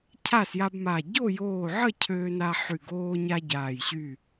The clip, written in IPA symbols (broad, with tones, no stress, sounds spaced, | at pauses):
cʰ a˥˨ s j a˦ b m a˧˩ ɟ o˥˨ j oː˧˩ ʕ ə˥˨ cʰ øː˦ n a˦ ħ y˧˩ ɡ oː˦ ɲ a˦ ɟ aː˧˩ j ɕ y˥˨